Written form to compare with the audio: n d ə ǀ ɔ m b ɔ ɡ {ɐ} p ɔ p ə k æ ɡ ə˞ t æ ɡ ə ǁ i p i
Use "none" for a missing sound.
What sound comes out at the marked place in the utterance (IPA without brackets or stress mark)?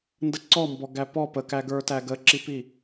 æ